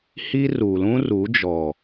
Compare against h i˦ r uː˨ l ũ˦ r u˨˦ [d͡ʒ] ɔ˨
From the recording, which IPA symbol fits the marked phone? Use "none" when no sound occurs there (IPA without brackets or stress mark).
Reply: d͡ʒ